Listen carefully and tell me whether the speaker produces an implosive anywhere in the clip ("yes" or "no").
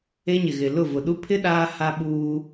yes